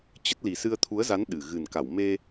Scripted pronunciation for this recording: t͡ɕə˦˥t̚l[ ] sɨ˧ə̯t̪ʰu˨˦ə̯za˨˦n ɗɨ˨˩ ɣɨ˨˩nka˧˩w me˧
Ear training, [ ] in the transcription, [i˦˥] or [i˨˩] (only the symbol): i˨˩